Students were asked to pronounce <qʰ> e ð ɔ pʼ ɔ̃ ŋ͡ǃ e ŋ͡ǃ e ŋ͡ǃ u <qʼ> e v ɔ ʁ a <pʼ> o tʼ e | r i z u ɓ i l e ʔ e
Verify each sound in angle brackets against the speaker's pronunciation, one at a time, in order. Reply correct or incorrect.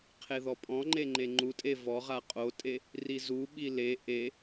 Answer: correct, incorrect: tʼ, incorrect: qʼ

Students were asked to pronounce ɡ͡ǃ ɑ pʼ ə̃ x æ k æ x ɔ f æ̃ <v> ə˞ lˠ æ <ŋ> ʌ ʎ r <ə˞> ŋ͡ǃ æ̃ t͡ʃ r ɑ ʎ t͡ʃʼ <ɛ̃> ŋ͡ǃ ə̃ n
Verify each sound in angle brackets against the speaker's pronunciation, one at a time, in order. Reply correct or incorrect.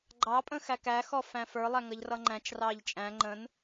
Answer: incorrect: f, correct, incorrect: ʌ, incorrect: æ̃

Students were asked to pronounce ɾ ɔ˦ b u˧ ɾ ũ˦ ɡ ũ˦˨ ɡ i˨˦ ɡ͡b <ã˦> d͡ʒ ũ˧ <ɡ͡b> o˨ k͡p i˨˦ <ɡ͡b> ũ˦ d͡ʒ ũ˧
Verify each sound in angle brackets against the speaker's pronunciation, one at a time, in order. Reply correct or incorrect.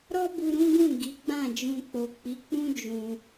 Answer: incorrect: ã˦˨, incorrect: k͡p, incorrect: k͡p

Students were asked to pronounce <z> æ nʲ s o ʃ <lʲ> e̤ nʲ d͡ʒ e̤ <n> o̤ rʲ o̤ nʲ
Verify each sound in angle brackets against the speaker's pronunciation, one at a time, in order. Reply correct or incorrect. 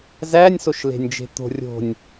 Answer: correct, incorrect: l, incorrect: t̪

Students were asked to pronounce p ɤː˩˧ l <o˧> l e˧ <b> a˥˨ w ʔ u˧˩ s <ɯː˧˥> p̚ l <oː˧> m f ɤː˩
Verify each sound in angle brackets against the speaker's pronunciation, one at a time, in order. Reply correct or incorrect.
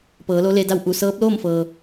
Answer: incorrect: o˧˥, incorrect: d, incorrect: ɤː˧˥, incorrect: oː˥˨

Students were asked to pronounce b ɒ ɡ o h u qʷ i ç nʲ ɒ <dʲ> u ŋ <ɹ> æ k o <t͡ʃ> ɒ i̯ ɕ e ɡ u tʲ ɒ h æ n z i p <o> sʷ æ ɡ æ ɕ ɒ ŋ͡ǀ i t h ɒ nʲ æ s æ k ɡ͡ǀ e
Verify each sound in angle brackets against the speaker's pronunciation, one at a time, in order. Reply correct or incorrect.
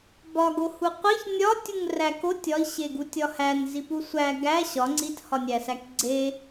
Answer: incorrect: tʲ, incorrect: r, incorrect: tʲ, incorrect: u

